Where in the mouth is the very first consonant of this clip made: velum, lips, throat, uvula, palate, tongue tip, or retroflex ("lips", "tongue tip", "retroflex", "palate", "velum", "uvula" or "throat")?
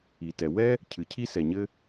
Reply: tongue tip